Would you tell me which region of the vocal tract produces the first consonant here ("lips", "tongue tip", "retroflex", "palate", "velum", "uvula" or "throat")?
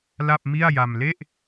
tongue tip